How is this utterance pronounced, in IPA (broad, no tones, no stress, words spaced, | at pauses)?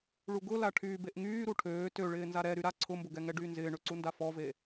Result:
ɭuɡʊla ʈʰyːbeʔŋyː ɾuʈʰøː tøɭɪː nzaɾɛ ɾyɾa ǀʰʊmbʊɡɛŋɛ ɖyːnzɪːɳøǀu ndafɔve